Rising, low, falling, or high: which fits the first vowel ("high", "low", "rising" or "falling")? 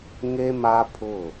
high